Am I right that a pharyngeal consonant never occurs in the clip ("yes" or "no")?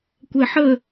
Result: no